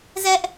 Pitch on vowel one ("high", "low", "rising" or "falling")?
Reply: high